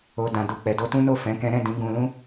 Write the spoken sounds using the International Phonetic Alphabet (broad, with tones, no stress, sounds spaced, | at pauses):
o˨ d ã˨ d u˨ k͡p ɛ˨ d o˧ t ũ˦ n o˦˨ f ɛ̃˨˦ k ɛ̃˦ ɾ ɛ̃˦˨ d ĩ˨˦ ɡ ũ˧ l ũ˦